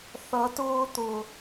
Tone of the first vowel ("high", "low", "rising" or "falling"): rising